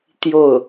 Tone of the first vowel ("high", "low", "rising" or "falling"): falling